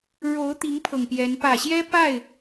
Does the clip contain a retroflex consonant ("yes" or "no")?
yes